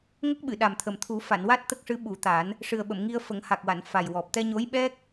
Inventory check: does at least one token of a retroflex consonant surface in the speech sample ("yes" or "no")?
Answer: yes